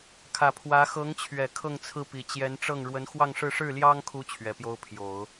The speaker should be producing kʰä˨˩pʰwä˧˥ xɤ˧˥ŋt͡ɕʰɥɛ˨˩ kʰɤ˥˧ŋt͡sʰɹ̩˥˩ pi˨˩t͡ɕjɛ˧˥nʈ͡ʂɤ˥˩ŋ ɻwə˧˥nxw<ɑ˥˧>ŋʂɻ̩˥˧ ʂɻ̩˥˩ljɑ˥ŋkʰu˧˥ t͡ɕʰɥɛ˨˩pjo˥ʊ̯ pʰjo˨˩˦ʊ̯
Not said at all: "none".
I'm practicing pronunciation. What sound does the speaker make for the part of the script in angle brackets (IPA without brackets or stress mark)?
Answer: ɑ˥˧